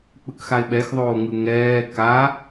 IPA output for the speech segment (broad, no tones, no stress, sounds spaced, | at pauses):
k͡p ɯ k x a ɪ̯ ɓ ɛ x ðˤ oː ŋ ɯ ŋ ɛː k a